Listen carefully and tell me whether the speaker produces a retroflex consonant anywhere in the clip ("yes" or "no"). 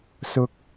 no